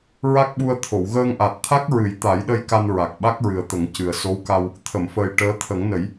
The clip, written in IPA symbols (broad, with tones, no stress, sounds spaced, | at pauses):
ɹ a˦˥ k̚ ɓ u˧ ə̯ t̪ʰ o˨˩˨ w ɣ əː˧ ŋ ʔ a˨˩ t̚ t̪ʰ a˦˥ k̚ ɹ ɨ˨˩˦ j t̪ a˨˩˦ j ɗ ə˧ j k a˧ n ɹ a˨˩ k̚ ɓ a˦˥ k̚ ɹ ɨ˨˩ ə̯ t̪ ə˨˩˦ ŋ c ɨ˨˩ ə̯ s o˧˥ w k a˧ w | t̪ʰ ə˨˩˨ m f əː˨˩ j ʈ əː˧˥ t̪ʰ ə˨˩˦ ŋ n ə˨˩˦ j